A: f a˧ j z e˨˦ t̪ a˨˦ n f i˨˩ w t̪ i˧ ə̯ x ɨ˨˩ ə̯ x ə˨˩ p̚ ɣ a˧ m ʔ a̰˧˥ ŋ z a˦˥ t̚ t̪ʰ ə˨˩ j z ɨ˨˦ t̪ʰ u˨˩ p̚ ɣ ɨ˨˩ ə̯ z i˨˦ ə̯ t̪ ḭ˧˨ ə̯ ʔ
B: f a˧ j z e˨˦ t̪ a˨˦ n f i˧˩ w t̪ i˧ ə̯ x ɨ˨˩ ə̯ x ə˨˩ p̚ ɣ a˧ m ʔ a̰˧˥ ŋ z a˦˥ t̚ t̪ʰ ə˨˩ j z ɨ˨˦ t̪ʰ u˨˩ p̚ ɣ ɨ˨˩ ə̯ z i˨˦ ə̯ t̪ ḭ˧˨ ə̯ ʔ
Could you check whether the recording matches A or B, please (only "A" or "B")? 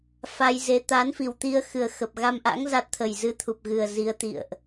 A